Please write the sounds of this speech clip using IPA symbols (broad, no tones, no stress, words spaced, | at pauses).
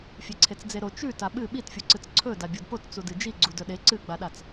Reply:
fʲeǀʰet͡sd͡zeɾo t͡ʃʉ taɓɨ ɓitfʲuǀɨt͡s ǀʰɵ dabʲodpot t͡sudɨd͡ʒi ɡ͡ǀudɵɗe ǀɨɡ͡baɗat͡s